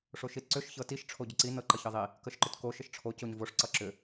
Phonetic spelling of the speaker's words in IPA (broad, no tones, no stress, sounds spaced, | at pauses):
ʂ o ʃ i t ǀ ʏ ʃ ç ɤ t i ʃ ʈ͡ʂʰ o ɟ ʏ ǀ i n ɤ ǃ ʌ ç ɤ ðˤ i | k ə ʃ ǃ ʏ t k o ʃ ə ʃ ʈ͡ʂʰ o c o ɲ v o ʂ ǀ ʌ ǁ ʏ